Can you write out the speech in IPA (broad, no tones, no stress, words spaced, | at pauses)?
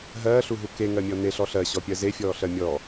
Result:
ɦɜːɬuɦu keŋɜmʲɔ neɬɔ ɬɜɕɔpʲɜ zefʲɔːɬɜ mʲɔ